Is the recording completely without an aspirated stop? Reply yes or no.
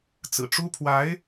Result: no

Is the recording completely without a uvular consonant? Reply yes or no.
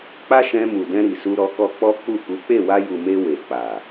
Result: yes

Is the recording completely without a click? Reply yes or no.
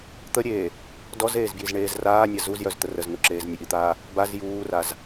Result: no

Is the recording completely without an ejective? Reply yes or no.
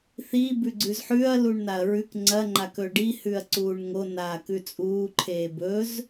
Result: no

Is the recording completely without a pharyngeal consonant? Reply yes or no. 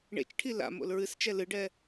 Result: yes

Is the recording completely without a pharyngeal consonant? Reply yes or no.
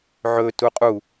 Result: no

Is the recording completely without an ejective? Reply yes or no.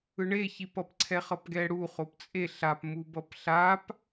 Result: no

